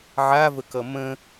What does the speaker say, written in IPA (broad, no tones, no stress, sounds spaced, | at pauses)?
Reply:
ʕ a v ə k ʌ m ə̃